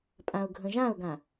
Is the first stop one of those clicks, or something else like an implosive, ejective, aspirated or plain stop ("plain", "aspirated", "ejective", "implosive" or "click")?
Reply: ejective